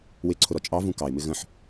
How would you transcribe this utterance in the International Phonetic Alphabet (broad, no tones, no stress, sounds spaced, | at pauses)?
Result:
w ɪ ǀʰ ʊ ɾ ɔ t͡ʃʼ ɑ v ũ k ɑ ɪ̯ m ɪ ɣ ə̃ ħ